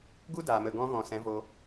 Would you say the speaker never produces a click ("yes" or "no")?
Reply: yes